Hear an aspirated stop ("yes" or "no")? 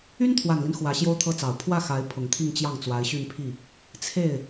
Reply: yes